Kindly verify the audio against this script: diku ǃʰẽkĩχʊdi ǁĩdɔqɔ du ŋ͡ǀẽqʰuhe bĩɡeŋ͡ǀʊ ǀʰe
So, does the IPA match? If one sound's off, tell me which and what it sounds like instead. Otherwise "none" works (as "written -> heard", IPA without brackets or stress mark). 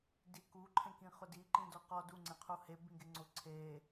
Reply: ǁ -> ǃ